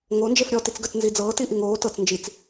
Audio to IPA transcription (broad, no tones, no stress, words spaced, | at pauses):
ŋo nd͡ʒefɾʲɔ tit͡sɡət͡s nzid͡zɤː tiʔiŋoː tɤt͡s nd͡ʒit͡s